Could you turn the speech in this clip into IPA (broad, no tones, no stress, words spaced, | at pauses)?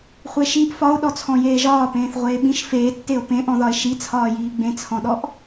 χʷeʃiʔ fɒo̯ɗɔt͡sʰɔ̃ jeːʒɒːpẽːθʁʷeː ɓĩʃ feːtːeo̯ pẽʔɔ̃ðɒe̯ ʃit͡sʰɒːjiː ɡ͡bẽt͡sʰɔ̃ɗɔʔ